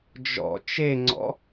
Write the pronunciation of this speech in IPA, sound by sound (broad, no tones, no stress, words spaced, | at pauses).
d͡ʒɔ̰ t͡ʃeŋ͡ǀɔ̰